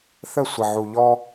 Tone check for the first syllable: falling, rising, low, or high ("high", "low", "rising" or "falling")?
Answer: falling